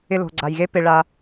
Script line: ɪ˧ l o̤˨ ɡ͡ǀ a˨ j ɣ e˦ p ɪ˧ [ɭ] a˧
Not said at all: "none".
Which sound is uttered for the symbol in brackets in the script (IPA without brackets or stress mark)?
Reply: ɭ